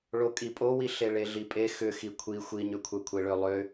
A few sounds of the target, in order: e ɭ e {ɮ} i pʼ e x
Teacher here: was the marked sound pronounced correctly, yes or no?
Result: yes